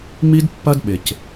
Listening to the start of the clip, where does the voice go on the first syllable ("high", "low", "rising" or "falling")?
high